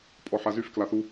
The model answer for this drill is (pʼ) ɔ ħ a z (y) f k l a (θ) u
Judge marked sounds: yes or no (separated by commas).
yes, yes, yes